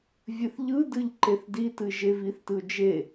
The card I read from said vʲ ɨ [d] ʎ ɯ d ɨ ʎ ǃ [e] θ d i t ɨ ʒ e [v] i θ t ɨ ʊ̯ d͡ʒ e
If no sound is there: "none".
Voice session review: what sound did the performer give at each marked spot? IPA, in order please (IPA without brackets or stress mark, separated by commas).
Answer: θ, e, v